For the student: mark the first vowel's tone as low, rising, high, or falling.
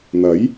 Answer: rising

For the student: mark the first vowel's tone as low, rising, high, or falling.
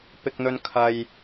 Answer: high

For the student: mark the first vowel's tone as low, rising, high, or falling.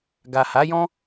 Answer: low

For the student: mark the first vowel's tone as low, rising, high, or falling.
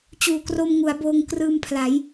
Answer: low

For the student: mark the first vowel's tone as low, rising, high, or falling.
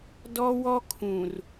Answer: high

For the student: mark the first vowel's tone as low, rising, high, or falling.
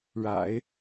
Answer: low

